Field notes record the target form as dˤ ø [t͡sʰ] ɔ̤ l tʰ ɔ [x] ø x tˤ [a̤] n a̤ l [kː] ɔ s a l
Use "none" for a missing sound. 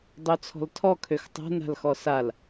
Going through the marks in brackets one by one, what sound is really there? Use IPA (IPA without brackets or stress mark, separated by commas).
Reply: t͡sʰ, kʰ, a̤, x